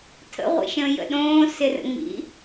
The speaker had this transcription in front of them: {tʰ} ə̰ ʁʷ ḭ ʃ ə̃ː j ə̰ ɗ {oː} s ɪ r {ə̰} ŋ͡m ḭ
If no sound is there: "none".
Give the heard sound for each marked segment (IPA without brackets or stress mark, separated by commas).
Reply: tʰ, õː, ə̰